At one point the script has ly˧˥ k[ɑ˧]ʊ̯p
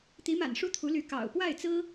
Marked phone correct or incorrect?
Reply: incorrect